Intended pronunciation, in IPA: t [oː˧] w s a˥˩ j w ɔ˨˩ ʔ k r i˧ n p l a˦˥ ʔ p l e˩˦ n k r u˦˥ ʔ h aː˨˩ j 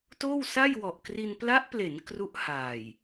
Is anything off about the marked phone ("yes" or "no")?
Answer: yes